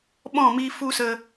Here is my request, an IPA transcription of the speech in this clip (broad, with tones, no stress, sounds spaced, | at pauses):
ɓ ɔ̃˦˨ m i˧ f u˦ s ə˧